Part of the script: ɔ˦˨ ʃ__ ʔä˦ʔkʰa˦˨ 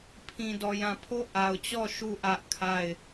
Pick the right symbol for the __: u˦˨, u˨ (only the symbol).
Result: u˦˨